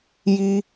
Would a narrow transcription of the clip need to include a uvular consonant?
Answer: no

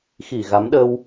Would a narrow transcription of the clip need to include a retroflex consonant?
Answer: no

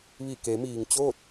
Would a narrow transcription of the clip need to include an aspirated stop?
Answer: no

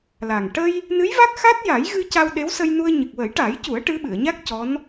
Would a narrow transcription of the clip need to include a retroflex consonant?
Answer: yes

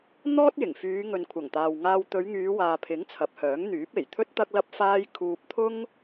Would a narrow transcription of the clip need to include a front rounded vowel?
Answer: yes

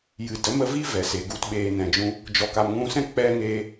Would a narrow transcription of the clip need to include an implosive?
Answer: yes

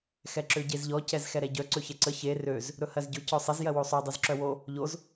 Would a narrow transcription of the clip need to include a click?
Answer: yes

